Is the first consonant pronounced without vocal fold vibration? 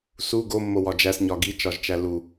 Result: yes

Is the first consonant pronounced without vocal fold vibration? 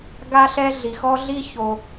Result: no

